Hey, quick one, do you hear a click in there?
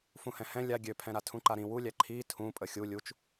yes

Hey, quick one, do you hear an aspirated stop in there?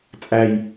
no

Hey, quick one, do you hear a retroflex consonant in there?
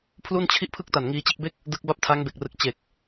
no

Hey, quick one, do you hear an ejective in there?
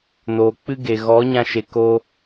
no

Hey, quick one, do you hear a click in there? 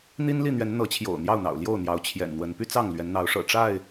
no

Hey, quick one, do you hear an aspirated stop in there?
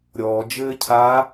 yes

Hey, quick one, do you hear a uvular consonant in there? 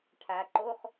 yes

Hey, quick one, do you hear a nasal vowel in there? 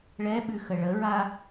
no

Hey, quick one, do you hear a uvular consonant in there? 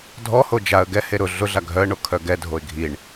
no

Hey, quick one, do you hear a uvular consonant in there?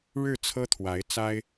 no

